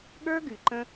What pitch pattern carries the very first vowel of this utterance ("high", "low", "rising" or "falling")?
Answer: high